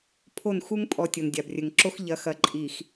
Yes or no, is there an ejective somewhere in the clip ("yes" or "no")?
yes